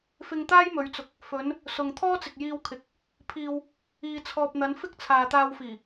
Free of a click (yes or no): yes